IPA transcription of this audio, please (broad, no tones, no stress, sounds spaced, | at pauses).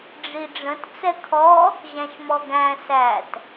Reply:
ɖ͡ʐ i ɖ͡ʐ ə̃ t t͡s ɛ kʰ ɔ | ʑ æ̃ ʃ m ɔ ɡ æ̃ s æ t